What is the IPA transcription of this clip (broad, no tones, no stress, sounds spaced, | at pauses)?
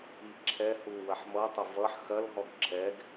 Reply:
i ǁʰ ɛ h u w ɐ ħ m ʌ tˤ ʌ v ʌ ħ x ɐ l ɦ ɔ ɡ ǁʰ ɛ ɡ